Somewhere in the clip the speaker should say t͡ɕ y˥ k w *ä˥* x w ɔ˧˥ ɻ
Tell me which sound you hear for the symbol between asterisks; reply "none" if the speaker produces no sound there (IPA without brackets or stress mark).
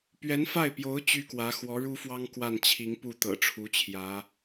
ä˧˥